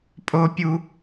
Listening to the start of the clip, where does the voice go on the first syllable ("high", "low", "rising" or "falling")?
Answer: high